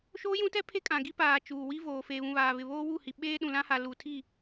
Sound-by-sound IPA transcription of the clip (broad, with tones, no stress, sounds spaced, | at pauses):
ʃ oː˦ j ũ˦ t ɛ˦ pʰ e˦ kʼ ã˨ ɡ i˦ p aː˨ t͡ʃ uː˨ w i˦ v oː˨ f eː˨ β ũ˨ β aː˨ β ɪ˨ β oː˦ w u˦˨ h i˨ ɓ eː˦ ɗ ũ˨ l ã˦ h a˨ l u˨ tʰ i˦˨